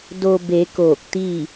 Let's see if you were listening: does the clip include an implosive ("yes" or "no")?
no